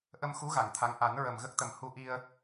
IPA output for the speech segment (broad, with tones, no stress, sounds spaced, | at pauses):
ʔ ə˧ m x u˧˥ ɣ a˨˩˨ ŋ t̪ʰ a˧˥ ŋ ʔ a˨˩˦ n ɹ ə˨˩ m ɣ ə˦˥ k̚ t̪ ə˨˩ m h u˧ ʔ i˧ ə̯